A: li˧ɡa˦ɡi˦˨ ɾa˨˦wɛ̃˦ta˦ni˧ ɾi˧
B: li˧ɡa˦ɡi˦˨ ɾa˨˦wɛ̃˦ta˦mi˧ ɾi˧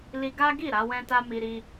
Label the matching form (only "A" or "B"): B